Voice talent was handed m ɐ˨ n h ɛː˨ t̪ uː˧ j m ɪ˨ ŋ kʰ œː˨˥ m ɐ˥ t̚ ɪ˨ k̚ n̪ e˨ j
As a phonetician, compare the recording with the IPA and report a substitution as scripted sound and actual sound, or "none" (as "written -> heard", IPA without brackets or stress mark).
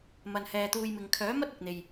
none